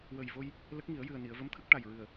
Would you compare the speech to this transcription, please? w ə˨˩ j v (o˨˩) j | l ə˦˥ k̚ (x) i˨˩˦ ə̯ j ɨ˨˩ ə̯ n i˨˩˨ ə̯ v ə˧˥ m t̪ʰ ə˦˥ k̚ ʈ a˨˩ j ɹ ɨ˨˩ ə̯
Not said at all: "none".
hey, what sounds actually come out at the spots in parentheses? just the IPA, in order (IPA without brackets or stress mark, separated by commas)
o˧, ŋ